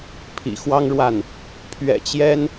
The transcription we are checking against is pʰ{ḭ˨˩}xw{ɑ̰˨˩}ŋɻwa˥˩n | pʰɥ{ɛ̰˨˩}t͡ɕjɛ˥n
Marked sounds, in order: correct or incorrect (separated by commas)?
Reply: correct, incorrect, correct